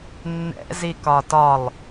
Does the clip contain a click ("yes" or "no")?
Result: no